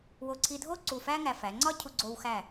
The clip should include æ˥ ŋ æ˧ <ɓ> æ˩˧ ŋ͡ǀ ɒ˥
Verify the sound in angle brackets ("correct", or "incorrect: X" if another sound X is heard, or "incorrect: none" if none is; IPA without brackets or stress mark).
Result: incorrect: f